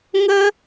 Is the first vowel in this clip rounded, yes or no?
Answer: no